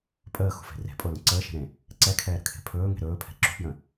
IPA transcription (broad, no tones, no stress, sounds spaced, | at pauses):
pʼ əː x ṳ f e̤ r e̤ pʼ o l ə̃ ǀ əː ʃ e̤ ɾ ẽ | ǀ ɛ kʰ ɛː ɾ ə̤ kʰ e̤ pʰ ɵː ŋ e̤ ɾ ɵː pʰ ɛ̤ ǁ ṳ p j ə̃